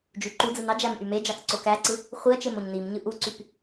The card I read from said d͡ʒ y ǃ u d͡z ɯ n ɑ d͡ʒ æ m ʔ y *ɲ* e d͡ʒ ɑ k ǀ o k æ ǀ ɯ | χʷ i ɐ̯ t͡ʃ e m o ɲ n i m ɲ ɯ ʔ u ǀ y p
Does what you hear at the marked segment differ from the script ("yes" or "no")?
yes